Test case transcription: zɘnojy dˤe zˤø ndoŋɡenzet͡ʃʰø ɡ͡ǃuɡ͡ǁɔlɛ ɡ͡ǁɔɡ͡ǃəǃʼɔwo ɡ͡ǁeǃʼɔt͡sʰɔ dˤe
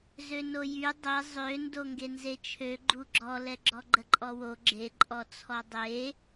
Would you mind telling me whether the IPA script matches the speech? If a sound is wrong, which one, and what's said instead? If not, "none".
ɘ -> ø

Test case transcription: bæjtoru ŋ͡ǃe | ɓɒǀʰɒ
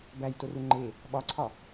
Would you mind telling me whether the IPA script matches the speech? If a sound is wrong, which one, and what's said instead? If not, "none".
none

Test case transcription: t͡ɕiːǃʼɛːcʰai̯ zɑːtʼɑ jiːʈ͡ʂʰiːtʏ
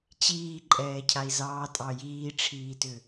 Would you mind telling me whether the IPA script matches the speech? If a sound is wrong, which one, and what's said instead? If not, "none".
none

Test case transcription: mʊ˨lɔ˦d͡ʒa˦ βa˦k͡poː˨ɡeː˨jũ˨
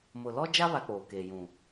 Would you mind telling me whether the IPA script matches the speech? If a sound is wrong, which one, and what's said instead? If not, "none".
ɡ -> k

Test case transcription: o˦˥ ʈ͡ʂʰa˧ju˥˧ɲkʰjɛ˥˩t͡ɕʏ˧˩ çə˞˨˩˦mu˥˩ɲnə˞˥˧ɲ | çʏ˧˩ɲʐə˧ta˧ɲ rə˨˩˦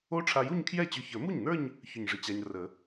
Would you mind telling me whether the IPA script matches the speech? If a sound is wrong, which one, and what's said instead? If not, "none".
t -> t͡ɕ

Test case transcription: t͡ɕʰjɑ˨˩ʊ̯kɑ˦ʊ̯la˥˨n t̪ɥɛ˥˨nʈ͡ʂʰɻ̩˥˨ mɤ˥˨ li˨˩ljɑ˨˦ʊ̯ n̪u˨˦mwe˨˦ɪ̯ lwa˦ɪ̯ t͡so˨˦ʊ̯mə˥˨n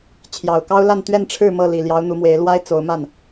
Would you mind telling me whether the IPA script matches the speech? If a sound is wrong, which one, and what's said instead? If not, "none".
ə˥˨ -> a˥˨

